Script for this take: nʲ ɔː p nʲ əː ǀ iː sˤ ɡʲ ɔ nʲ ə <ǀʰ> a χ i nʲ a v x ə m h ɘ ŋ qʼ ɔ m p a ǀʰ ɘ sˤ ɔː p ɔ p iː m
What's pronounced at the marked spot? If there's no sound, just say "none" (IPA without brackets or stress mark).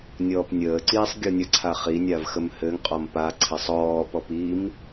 ǀʰ